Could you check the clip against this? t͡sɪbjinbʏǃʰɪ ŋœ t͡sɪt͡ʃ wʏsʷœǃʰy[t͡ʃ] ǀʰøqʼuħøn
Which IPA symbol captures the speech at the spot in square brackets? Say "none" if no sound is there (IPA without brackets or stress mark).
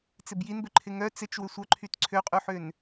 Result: t